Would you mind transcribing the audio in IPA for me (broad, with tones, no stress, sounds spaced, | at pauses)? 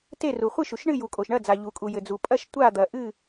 t e˥˨ r u˩ χʷ ɨ˥˨ ʃ u˩ ʃ ɳ ɨ˥˨ j u˩ kʼ o˩ ʃ ɳ ɐ˥˨ d͡z a˩ ʎ u˩ kʼ u˩ j ɘ˩ d͡z u˩ pʼ ɐ˥˨ ʃ tʷ a˥˨ d̪ ɐ˩ ʔ ɨ˥˨